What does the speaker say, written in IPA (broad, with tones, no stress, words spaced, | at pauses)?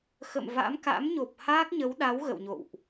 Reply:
xə̰˧˨mva̰˧˥m ka̰˧˥mɲo˨˩p̚ haː˦˥k̚ɲə˨˦wɗa˨˦w ɣə̰˧˨wɲo̰˧˨wʔ